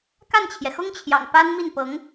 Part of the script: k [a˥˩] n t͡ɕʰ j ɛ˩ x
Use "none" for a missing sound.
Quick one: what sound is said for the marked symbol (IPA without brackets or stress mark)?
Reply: a˥˩